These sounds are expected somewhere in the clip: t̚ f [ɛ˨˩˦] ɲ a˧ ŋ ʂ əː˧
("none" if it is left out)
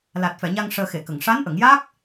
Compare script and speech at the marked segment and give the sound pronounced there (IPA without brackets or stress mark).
ɛ˨˩˨